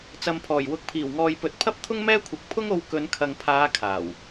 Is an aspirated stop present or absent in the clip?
present